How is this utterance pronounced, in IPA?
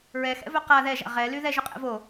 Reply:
ɹɛxɛ̰vœ qa ðɛʒa̰ ʁɛly ðɛʒø qʼɛ̰vo

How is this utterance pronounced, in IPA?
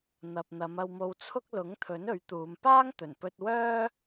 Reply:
n̪ɐ˨p̚n̪ɐ˨˧m ɐ˧wmo˧wt͡sʰʊ˥k̚ lʊ˨˥ŋt̪ʰɵ˨˥n ɵ˨˥ɥt̪uː˨˧m paː˥ŋt̪ɵ˨˩npɵ˧t̚ wœː˥

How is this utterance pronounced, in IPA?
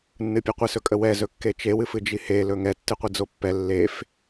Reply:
nːɨpʲɨqʷes ɵkʼəwɛ zɵkːet͡ʃe wɨfɨd͡ʒihe lɵŋɛ tːɨqʷid͡zopːɛ lːef

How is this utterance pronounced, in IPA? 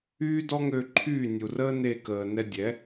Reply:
yː˥dɔ˥ŋø˧ ǃʰyː˥˩nʲu˩rəː˥ ne˥˩kəː˩ nɛ˧dʲɛ˩˥

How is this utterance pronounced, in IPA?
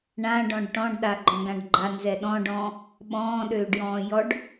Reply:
ɳã ɖɔ̃ɖʈɔ̃ɖɗa ɡ͡ǃɔ̃ɡãɖɡ͡ǃanzɛ ɗɔ̃ɖɔ̃ː | ɓɔ̃ːɗøːɖjɔ̃ː jɔɖ

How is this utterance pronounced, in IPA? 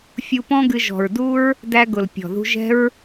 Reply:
fʲu˧pɔ̃˦ɡɨ˧ ʒɔ̤˨ɹdu˦ɹ | dæ˧ɡʊ˨l pʲɔ̤˨ðṳ˧ʒɛ̤˦ɹ

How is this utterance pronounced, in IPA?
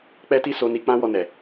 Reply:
k͡pɛ˦ti˦so˧ ni˧k͡pã˦wɔ˧ nɛ˨

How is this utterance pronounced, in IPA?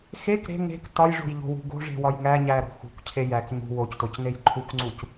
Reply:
xek ɾe̤ ŋe̤k tɒjʐo̤jʎo̤wṳ ɡo̤ʐe̤wɒj ŋæɲæɾo̤ xṳkcʰe jæk ɲṳ woctocnej ǃʰukŋ͡ǀuc

